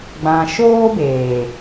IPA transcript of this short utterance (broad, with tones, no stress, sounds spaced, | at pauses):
ɡ͡b ã˨ ʃ oː˦ b eː˨